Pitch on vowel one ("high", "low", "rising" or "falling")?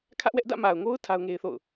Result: high